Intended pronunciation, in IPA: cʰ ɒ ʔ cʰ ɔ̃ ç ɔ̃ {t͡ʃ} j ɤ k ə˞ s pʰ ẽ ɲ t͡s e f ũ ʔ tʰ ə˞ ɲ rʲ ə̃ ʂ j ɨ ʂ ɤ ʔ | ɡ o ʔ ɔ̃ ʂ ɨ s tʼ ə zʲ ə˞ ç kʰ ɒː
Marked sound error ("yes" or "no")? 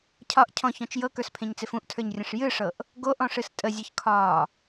no